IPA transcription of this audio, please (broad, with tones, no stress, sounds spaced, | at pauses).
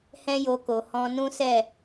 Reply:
h ɛ̃˦ j o˧ k o˨ h ɔ̃˧ n ũ˦ s ɛ˦˨